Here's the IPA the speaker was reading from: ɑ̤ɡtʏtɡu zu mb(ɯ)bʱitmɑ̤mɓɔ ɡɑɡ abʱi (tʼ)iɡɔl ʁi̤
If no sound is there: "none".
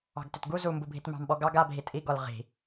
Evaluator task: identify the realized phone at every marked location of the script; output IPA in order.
u, tʼ

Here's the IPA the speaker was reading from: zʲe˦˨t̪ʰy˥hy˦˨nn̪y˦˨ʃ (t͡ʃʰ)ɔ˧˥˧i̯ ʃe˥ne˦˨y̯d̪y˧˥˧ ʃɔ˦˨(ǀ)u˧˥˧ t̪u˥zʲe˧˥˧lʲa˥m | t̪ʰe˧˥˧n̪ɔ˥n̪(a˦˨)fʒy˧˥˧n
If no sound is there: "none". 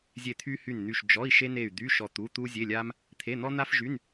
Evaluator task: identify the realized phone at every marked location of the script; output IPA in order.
d͡ʒ, t̪, a˥

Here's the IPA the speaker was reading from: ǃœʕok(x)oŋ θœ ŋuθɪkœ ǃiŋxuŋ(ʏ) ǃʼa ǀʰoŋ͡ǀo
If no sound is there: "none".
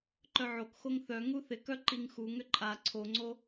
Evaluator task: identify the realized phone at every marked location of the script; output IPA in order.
x, ʏ

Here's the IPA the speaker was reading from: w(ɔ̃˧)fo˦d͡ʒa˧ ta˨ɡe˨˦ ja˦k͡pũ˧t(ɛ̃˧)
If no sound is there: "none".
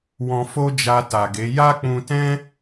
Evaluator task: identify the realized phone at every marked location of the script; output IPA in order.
ɔ̃˧, ɛ̃˦

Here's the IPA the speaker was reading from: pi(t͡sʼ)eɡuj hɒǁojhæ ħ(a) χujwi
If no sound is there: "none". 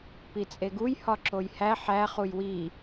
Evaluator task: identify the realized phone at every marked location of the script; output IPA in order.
t͡sʼ, æ

